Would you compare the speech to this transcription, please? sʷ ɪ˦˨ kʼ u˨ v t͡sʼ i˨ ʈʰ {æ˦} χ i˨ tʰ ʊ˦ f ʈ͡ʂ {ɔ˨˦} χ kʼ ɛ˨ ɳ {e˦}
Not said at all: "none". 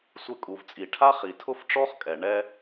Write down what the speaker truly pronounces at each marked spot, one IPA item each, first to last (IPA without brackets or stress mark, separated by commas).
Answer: a˦, ɔ˦, ɛ˦